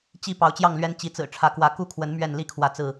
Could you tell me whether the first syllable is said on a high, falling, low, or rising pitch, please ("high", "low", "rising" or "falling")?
falling